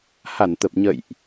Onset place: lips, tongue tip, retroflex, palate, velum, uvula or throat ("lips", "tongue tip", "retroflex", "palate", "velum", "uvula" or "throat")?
throat